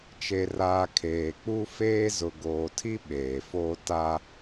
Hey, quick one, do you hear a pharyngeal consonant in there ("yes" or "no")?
no